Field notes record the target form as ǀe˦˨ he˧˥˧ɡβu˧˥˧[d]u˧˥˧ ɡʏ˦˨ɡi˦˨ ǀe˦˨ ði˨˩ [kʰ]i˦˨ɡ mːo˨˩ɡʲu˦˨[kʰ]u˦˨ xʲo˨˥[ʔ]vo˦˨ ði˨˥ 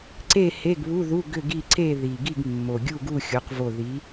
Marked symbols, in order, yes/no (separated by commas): no, no, no, no